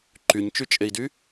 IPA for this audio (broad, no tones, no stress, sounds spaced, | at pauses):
ǃ y ɲ t͡ʃ y t͡ʃʼ e i̯ d y